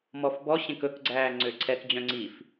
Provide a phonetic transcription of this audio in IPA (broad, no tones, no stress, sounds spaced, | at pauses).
m ɔ f b ɔ ɕ ẽ k ɵ k ɡ͡ǀ æː ŋ͡ǀ ø ǀʰ ɛ k d͡ʑ œ̃ ŋ͡ǀ i f